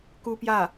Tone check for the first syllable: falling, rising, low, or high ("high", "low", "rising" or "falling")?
high